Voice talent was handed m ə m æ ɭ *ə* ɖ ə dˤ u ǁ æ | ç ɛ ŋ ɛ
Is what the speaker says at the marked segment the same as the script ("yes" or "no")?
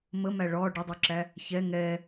no